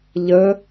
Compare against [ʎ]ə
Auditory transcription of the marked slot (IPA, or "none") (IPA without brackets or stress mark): ʎ